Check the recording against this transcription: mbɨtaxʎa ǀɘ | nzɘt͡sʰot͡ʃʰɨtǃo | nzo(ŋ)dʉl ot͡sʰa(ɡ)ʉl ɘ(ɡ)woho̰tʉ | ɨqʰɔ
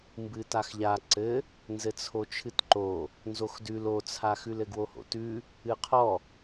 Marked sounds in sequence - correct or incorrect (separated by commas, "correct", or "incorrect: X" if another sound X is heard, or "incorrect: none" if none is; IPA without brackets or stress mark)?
incorrect: x, incorrect: x, correct